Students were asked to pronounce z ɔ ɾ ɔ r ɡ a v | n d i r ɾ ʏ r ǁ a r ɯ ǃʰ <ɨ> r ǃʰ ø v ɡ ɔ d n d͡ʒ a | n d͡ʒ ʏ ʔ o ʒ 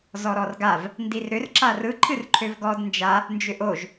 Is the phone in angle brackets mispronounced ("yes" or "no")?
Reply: no